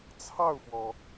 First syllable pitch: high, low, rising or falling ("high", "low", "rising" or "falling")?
falling